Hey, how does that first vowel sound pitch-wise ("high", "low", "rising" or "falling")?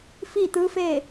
falling